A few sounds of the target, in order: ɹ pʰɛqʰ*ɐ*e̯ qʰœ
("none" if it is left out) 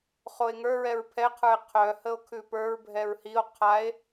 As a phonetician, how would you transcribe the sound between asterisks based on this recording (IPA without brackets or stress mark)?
ə˞